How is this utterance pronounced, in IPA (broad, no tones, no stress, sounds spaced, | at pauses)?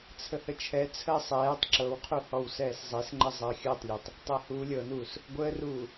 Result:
t͡sʰ ə h ə t͡ʃʰ ɛ t͡sʰ əː sˤ ɛː tˤ ǁ ɤ w qʰ u h ɔ w s ɛː s zˤ e s ŋ͡ǃ ə zˤ əː xʲ əː tˤ lʲ e tˤ | tˤ ɤ h uː lʲ ɤ n uː s | ɡʷ əː r uː